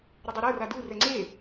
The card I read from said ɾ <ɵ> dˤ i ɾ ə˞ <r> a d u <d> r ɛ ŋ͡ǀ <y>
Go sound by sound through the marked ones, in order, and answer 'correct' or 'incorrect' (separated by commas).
incorrect, correct, incorrect, incorrect